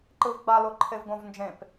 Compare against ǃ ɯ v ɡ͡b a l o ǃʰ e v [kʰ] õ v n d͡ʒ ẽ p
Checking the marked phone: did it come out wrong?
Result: yes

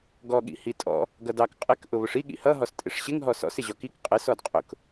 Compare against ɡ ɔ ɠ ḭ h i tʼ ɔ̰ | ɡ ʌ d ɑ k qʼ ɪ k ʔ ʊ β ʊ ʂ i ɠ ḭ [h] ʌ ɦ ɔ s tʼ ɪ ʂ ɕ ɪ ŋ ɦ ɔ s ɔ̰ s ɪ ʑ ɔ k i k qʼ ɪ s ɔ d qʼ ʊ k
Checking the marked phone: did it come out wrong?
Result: no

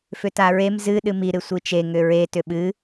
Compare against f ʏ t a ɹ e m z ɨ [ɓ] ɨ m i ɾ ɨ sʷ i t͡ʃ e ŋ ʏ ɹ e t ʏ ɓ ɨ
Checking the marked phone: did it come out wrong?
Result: yes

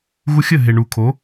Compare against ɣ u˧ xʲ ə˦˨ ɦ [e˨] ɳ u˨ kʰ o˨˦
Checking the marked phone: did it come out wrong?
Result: no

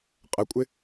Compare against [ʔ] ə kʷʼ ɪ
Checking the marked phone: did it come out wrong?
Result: yes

